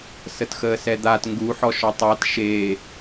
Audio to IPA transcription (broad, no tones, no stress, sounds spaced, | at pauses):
s ə t x əː s ɛ d̪ a t ŋ ɡ u ħ ɔ ʃ ɔ tˤ ɑ t ʃ e